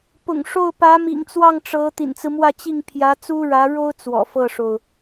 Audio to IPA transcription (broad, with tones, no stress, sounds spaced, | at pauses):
p ʊ̰˨˩ ŋ ʂ o˥˩ ʊ̯ p ä˧˥ m ḭ˨˩ ŋ t͡s w ɑ˥˩ ŋ ʈ͡ʂ ɤ˧˥ t̪ ḭ˨˩ n t͡s ɹ̩˦ m w ä˥˧ t͡ɕ i˥˩ ŋ pʰ j ä˧˥ t͡s u˥ ɻ ä˧˥ ɻ o˥ ʊ̯ t͡s w ɔ̰˨˩ f ɤ˥˩ ʂ o˩ ʊ̯